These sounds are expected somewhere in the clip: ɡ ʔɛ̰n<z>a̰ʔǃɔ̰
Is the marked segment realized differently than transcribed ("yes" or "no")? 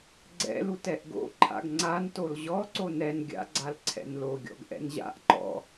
yes